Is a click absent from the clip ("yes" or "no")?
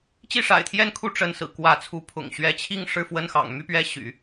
yes